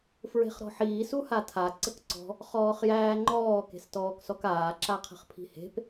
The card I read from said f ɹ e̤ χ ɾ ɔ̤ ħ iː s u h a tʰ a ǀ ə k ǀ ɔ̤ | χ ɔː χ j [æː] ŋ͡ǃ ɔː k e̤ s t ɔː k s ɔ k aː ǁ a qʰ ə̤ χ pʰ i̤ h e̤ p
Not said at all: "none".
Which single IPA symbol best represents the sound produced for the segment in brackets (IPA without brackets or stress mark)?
æː